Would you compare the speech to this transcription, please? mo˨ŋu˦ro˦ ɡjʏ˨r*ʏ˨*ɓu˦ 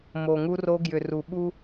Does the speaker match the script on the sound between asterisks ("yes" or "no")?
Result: no